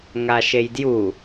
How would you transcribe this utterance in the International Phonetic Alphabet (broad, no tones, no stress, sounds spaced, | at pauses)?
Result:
ŋ a ʃ e j d j u